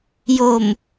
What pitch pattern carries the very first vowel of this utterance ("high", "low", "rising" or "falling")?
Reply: low